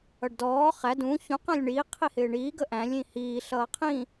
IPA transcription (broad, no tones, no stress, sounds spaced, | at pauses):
ʌ ɖ d ɔː χ æ d ũ ç ũ q æ̃ lʲ ɳ iː qʰ i h ɪː ɳ iː ɡ ə ʔ æ̃ lʲ ĩ h iː ɬ ʌː qʰ ĩ